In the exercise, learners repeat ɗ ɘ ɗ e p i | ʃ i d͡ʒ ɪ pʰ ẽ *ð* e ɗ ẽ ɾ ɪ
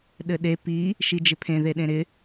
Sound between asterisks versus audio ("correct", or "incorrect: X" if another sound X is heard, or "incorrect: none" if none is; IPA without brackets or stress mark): correct